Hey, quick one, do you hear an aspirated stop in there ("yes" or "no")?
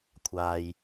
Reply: yes